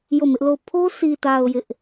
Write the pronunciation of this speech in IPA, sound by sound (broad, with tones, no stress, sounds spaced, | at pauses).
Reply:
j o˦˨ m ɪ˦ ʔ l o˦˨ ʊ̯ pʰ o˦ sʰ i˨ t a˨ ʊ̯ j ɪ˦ ʔ